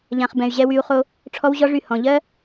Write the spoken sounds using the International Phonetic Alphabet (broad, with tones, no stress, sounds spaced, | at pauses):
ʎ ã˨ χ b ɛ̃˨ y̯ ʑ ɛ˧ w y˧ u̯ χ o˦ | ʈ͡ʂʰ ɔ˦ w ʑ ɔ˦ ʐ y˦˨ h ɔ̃˨ ʎ ɜ˦